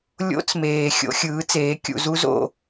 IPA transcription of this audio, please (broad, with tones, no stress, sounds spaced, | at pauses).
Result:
lʲ o̰˦ t͡s m eː˨ xʲ o̰˦ xʲ ɯː˨˦ t͡s eː˨˦ kʲ ṵ˨ z u˦ z o̰˦˨